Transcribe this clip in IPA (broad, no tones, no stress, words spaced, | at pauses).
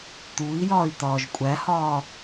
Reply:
t̪ui̯jɒːy̯ t̪ɒːʒkʷʼæhɒː